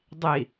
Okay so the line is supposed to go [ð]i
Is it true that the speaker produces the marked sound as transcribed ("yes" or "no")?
no